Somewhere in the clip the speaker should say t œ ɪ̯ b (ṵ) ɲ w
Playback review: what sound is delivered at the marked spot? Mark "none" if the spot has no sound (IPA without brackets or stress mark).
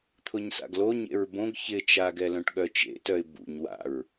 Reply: ṵ